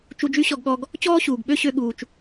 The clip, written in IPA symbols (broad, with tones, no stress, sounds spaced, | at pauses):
t͡ʃ u˧ d͡ʒ y˥ ɕ ɔ˧ ɡ ɠ ɔ˧ ɡ | t͡ɕ ɔː˥ ɕ uː˩ ɡ ɓ ø˥ ɕ ø˧ ɠ uː˩ t͡ʃ